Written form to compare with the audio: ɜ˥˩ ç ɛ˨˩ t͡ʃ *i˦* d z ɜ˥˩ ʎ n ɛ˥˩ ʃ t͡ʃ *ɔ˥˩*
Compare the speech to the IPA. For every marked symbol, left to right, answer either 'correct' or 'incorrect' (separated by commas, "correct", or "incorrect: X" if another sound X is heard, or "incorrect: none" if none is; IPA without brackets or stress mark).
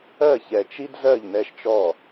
correct, correct